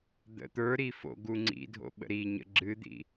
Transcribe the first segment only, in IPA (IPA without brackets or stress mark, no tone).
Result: d̪